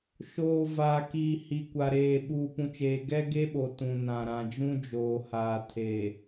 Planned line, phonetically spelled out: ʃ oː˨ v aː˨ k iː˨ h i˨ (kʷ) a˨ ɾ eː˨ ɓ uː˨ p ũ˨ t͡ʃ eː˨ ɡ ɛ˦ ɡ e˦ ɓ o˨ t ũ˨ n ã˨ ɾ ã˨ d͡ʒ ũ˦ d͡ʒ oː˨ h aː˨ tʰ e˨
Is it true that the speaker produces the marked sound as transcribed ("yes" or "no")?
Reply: yes